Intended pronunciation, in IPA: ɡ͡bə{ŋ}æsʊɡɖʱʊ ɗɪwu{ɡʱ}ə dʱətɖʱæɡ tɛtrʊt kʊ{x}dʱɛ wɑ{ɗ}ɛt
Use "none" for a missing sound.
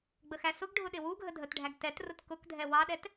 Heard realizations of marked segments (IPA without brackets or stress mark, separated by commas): x, ɡʱ, k, ɗ